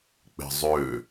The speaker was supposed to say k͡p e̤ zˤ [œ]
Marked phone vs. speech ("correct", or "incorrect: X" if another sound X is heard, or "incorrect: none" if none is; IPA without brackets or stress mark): incorrect: ø